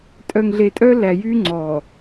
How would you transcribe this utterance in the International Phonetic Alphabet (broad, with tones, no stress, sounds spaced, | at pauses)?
tʼ œ˨ ŋ ɮ e˨ tʼ œ˦ l æ˨ j y˦ ŋ͡ǀ ɔ˨